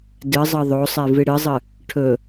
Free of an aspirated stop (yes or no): no